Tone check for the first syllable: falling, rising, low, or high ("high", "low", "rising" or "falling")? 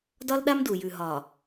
high